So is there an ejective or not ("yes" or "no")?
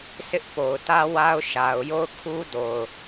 no